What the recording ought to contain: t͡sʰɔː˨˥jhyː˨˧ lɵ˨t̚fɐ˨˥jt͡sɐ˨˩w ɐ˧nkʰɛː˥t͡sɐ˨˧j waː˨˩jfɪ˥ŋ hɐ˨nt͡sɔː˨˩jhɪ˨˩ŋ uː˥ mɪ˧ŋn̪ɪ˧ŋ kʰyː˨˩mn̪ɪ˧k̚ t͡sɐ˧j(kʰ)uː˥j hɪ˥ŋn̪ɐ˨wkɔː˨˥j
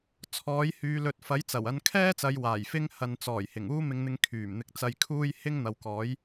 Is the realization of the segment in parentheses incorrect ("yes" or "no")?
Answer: no